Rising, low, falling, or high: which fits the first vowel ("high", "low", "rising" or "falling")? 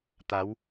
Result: rising